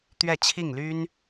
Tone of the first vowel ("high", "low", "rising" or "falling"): falling